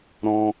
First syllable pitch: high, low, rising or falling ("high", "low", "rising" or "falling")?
high